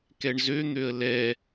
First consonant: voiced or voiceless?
voiceless